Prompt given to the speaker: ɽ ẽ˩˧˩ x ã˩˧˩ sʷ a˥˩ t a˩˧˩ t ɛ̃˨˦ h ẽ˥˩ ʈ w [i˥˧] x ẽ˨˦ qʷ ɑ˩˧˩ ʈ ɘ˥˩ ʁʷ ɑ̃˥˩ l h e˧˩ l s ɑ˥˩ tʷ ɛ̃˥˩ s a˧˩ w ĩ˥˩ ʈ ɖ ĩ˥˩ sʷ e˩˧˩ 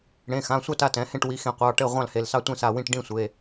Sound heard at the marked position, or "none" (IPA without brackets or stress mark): i˨˦